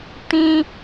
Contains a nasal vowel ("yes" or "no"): yes